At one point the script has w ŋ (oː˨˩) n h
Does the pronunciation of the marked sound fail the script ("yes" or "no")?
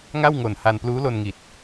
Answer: yes